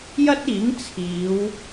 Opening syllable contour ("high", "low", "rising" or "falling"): high